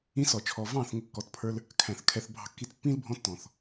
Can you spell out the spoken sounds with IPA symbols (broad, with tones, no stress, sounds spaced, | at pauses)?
ĩ˧ s ɔ˨ t͡ʃʰ ɔ˨ v ɑ̃ː˦˨ θ ŋ ə˧ kː ɔ˨˦ t pʰ ə˞˧ l | kʰ æ̃˨ θ kʰ ɛ˨ θ bʱ ɑ̤˧ kː i˧ t pː ĩː˦ l bʱ ɔ̃˧ tː ɔ̃˨ θ